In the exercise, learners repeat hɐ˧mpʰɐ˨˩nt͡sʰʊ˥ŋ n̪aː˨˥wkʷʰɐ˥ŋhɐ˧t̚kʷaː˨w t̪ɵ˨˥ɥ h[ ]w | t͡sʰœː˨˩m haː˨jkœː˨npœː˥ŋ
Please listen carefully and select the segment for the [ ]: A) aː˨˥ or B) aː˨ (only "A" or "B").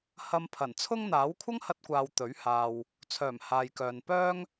B